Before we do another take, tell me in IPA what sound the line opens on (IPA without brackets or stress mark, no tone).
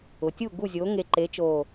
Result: ʊ